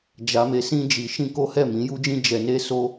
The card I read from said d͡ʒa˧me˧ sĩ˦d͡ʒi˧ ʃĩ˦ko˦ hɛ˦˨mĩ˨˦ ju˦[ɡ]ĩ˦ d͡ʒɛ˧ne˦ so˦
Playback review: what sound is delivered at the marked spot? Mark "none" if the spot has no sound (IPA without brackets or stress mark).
d͡ʒ